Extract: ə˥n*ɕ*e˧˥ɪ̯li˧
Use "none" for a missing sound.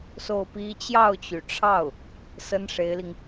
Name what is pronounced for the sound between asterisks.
ʂ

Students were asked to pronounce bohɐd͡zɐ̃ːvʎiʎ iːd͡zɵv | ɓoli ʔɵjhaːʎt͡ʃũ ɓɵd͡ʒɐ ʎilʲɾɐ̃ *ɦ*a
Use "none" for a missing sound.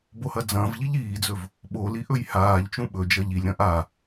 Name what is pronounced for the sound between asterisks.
ʔ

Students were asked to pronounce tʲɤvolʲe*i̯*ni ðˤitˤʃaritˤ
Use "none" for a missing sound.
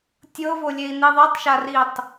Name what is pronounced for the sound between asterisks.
i̯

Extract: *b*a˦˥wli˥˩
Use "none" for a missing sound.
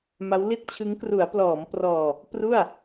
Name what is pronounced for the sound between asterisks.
m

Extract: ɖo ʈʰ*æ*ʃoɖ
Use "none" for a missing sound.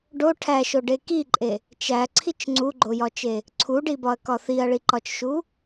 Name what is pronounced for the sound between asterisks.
æ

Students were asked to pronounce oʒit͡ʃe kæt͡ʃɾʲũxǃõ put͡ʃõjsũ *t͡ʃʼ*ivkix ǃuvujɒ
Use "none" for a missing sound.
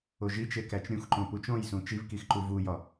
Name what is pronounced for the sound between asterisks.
t͡ʃ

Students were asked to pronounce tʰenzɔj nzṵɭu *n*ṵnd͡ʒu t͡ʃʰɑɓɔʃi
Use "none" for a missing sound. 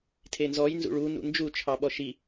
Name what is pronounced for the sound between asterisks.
n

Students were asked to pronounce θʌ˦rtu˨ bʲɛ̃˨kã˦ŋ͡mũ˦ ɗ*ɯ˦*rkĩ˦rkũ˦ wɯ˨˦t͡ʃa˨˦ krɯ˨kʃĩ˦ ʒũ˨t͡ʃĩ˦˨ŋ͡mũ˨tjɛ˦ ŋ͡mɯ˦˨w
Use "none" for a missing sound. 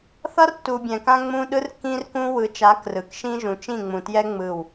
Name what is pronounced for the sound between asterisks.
ɯ˦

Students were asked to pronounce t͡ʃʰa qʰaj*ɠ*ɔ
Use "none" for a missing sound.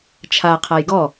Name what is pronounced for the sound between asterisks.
ɡ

